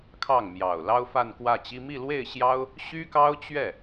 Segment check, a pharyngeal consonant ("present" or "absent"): absent